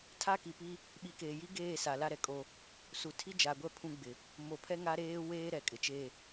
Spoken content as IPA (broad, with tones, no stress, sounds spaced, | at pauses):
tʰ a˦ k i˨ p i˦ | ɓ i˨˦ k eː˨ j i˦ ɡ eː˦˨ s a˨ l a˦ ɾ ɛ˨ kʼ o˦ | s u˨ tʰ i˦ d͡ʒ a˨ ɡʷ ɛ˦˨ pʰ ũ˦ ɡ͡b ɪ˨ | m o˨ pʰ ɛ˦ ŋ a˦ ɾ eː˦ w eː˦ ɾ ɛ˨ kʼ ɪ˨ t͡ʃ e˦˨